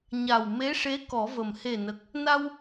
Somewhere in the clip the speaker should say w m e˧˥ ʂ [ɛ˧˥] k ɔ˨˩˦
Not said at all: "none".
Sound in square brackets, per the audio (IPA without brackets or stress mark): e˧˥